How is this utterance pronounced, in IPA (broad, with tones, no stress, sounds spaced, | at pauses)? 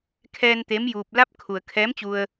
kʰ ɛː˧ n t̪ eː˧˥ m j uː˧ p̚ l a˧˥ p̚ kʰ u˩ ə̯ kʰ ɛː˧˥ m t͡ɕ u˧ ə̯